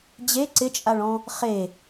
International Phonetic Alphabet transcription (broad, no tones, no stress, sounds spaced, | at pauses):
d͡ʑ e ǀ ɪ t͡ʃʼ a ɭ ɔ̃ | χ e